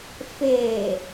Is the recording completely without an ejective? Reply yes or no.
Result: yes